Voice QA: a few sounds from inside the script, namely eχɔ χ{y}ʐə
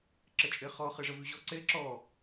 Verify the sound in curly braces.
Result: incorrect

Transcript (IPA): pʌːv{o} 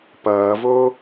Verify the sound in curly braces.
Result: correct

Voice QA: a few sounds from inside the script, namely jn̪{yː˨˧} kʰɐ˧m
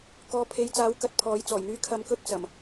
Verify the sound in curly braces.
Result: incorrect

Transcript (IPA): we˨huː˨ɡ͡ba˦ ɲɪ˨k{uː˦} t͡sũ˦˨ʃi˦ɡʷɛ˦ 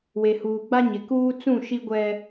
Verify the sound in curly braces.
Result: correct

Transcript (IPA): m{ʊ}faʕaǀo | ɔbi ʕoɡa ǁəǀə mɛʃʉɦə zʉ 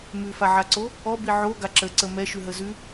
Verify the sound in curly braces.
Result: incorrect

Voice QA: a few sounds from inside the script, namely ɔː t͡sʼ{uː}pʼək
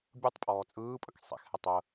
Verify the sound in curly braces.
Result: incorrect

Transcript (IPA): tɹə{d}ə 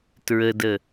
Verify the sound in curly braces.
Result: correct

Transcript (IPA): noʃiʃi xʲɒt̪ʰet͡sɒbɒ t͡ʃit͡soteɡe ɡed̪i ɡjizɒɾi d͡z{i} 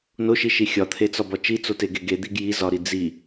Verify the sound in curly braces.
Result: correct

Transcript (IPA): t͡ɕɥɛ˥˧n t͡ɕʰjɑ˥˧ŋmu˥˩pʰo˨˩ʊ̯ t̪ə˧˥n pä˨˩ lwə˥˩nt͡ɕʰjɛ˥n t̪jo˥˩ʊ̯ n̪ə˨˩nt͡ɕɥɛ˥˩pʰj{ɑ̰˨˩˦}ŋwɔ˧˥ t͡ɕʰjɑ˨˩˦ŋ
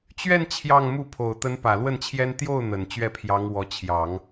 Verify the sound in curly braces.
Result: incorrect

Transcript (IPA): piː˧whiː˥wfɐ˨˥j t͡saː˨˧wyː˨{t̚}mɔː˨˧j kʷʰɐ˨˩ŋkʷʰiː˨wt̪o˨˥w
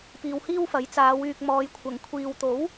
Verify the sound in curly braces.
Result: incorrect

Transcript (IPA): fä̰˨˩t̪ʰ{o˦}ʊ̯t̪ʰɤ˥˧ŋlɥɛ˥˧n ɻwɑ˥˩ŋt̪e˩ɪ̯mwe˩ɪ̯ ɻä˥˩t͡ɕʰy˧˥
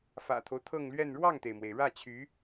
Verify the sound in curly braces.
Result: correct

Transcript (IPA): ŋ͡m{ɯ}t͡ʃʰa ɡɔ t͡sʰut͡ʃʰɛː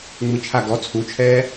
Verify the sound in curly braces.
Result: correct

